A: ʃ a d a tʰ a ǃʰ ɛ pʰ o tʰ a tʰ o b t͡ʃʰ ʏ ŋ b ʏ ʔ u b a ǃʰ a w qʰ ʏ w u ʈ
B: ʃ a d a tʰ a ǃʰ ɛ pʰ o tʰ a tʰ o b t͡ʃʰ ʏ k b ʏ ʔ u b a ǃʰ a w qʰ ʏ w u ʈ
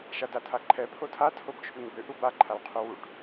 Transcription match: A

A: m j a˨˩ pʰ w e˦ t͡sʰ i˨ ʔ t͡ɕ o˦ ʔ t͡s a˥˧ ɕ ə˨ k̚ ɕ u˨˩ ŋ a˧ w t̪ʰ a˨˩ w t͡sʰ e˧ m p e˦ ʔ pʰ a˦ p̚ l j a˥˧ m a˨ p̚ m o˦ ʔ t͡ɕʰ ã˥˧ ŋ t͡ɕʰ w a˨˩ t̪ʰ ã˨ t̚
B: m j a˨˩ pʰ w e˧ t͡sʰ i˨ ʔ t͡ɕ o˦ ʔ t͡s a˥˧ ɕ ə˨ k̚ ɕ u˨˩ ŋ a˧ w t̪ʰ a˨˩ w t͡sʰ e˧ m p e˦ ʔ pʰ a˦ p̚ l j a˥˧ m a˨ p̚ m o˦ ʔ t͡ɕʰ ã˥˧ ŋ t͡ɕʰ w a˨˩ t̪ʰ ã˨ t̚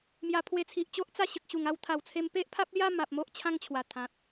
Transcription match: B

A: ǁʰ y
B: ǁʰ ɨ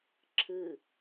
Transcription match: B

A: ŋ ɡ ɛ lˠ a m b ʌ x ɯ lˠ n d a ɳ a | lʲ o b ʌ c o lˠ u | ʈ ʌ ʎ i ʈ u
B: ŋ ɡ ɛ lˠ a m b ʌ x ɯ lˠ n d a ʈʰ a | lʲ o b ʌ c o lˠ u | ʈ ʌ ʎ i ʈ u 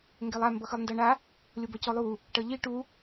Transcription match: A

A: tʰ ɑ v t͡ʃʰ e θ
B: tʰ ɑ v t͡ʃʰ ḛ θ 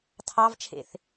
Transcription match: B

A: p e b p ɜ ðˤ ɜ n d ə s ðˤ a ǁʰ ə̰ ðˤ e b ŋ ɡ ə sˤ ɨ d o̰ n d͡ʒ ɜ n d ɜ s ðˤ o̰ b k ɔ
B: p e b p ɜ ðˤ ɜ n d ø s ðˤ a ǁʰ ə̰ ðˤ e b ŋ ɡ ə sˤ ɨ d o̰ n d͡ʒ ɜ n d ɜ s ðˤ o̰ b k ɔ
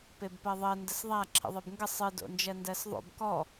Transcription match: A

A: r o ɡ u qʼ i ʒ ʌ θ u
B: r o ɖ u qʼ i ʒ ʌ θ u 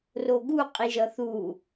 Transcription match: A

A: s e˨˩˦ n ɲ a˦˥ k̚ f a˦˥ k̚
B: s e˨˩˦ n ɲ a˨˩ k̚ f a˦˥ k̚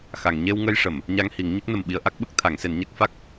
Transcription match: A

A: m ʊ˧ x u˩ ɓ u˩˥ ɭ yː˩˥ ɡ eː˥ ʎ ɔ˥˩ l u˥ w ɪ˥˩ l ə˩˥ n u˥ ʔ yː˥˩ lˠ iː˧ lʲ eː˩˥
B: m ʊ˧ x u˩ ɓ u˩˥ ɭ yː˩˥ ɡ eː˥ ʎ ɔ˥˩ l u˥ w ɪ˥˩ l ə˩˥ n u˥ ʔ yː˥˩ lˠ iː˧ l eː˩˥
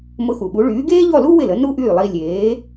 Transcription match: A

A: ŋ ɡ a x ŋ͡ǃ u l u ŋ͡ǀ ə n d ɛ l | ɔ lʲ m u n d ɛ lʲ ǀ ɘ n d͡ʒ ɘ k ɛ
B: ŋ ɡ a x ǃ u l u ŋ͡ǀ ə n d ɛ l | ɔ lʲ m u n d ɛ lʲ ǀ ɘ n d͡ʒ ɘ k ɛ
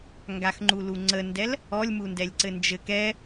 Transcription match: A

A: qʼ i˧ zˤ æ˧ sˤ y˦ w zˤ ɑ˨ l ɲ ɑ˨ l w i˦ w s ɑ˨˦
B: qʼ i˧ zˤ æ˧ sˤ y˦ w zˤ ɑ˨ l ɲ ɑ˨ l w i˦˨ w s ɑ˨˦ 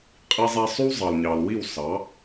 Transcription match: B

